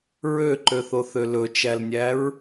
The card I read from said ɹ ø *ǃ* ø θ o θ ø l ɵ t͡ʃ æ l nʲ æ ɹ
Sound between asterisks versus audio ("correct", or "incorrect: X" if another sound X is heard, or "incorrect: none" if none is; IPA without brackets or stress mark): correct